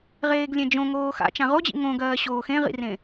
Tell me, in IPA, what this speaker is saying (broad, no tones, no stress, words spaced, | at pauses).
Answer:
ʁeːɡlʲẽd͡ʒõ ŋoːxa̰ t͡ʃãʁod͡ʑḭ ŋõɡɜː ɕoːxẽʁḭrẽ